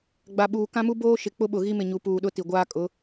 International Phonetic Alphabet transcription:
ɡ͡b a˨ ɓ uː˨ k ã˦ m u˦ b oː˦ ʃ ɪ˨ k͡p ʊ˦ ɓ ʊ˨ ɣ i˦ m ɪ˨ ɲ u˨ p uː˨ ɗ ʊ˦ t i˨ ɡʷ aː˦ kʼ ʊ˨˦

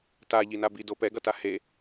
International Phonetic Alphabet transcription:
t a ʎ i n a b i d o p ɛ ɡ ʌ t a h e

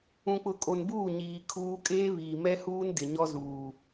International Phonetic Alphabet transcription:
ũ˨ k͡p ʊ˨ kʼ o˨ n b uː˦˨ ɲ iː˨ kʰ uː˦ kʼ eː˦ β iː˨ m ɛ˦ h uː˦ n d ɪ˨ ɲ ɔ˦ z uː˨

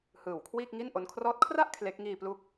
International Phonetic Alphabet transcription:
h ɯː˨˩ w kʰ w iː˥˩ k̚ ŋ i˥˩ n ʔ o˦˥ n kʰ r ɔː˥˩ t̚ kʰ r a˥˩ ʔ kʰ l e˦˥ k̚ ŋ iː˧ p l u˦˥ k̚

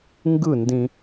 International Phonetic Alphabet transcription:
ŋ ɡ ɯ˥˨ n d ĩ˧

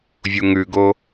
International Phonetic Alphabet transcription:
vʲ u ŋ ʉ ɡ o

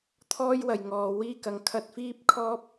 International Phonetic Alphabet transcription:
t̪ʰ ɔː˥ j w ɐ˨ j ŋ ɔː˨ w iː˥ k ɐ˨˥ ŋ kʰ ɐ˧ t̚ f iː˥ p̚ kʰ ɔː˥ p̚

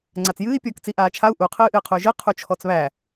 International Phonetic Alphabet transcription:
ŋ͡ǀ a t͡s j ɨː i̯ pʲ ɔː k t͡s i ʔ aː t͡ʃʰ a u̯ ʔ u qʰ ɨː ʔ ɨː qʰ u y̯ ʒ ɨ qʰ u t͡ʃʰ ɔ t͡s β æ

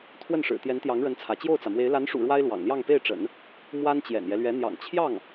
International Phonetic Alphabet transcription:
t̪ʰ w ə˥˩ n ʂ ɻ̩˨˩ t̪ j ɛ˧˥ n t̪ j ɑ˧˥ ŋ ɻ ə˧˥ n t͡sʰ ä˧˥ t͡ɕ j o˥˩ ʊ̯ t͡s ä˩ m w e˧˥ ɪ̯ l a˧˥ n ʂ ṵ˨˩ ɻ w a˥ ɪ̯ l w ɑ̰˨˩ ŋ l j ɑ˥˧ ŋ p e˥˩ ɪ̯ ʈ͡ʂ ə̰˨˩˦ n | m w a˥ n t͡ɕ j ɛ̰˨˩ n j ɛ˦ l ɥ ɛ˧˥ n̪ j ɑ̰˨˩ ŋ t͡ɕʰ j ɑ˥˩ ŋ

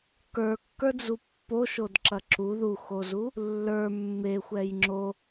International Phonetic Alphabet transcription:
k ə˞ kː ə˞ d͡z u pː o ʃ o d ǁ ɐ ǁ u ð u x o z u | lː ə˞ mː e xʷ ɛ j ŋ͡ǁ o

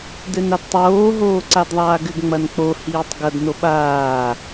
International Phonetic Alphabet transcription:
d ɘ n a d tˤ oː ɦ oː ǀ a d ðˤ aː ɡ ɘ ɡ ŋ͡m ɐ n k͡p o h iː tˤ ɡ ɐ d n o ɓ aː

